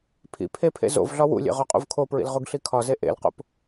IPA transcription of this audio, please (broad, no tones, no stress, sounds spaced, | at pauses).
pʰ ḭ pʰ e pʰ ḛ z o̰ v ɮ ɒ w ṵ lʲ ḛ ʁ o qʼ ṵ v kʰ o p ɹ ḭ l ʁ u ɡ ɬ i kʰ ɒ z e ʔ ḛ l q o̰ p